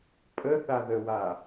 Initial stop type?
ejective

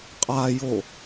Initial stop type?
ejective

